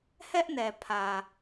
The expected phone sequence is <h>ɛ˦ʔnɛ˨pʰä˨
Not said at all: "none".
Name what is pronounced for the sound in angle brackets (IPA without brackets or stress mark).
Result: h